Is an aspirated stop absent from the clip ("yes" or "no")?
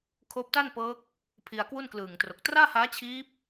no